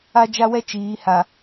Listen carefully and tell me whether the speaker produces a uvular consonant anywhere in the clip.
no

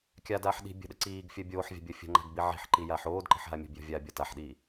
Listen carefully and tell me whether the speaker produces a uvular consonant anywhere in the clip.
no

